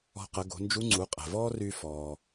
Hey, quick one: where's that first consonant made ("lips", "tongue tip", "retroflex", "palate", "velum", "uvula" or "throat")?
uvula